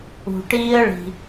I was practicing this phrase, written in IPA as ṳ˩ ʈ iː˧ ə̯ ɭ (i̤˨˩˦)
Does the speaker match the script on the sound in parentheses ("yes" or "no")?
no